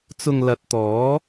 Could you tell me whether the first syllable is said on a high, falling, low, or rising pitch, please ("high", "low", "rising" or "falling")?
low